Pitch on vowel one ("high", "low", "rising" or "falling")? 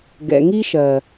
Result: low